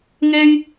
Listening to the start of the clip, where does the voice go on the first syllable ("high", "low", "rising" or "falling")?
high